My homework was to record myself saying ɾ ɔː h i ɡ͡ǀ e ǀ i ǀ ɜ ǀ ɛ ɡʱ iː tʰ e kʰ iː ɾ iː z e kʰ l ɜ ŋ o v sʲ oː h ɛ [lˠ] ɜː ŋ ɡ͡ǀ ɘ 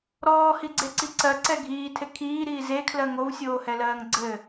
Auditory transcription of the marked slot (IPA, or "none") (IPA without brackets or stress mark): l